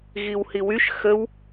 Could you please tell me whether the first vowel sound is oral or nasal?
oral